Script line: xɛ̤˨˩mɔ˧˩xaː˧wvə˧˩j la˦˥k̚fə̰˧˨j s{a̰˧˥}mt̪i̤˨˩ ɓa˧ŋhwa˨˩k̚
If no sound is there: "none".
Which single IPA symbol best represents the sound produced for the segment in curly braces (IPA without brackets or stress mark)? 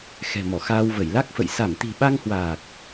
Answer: a˧˩